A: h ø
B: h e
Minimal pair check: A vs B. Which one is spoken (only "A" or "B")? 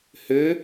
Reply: A